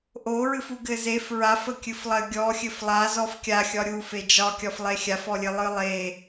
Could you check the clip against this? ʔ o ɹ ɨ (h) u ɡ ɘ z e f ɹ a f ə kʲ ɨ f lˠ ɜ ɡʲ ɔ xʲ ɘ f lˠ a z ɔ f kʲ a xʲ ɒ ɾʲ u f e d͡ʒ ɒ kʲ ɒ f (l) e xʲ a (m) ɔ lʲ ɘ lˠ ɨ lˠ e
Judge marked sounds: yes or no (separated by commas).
no, no, no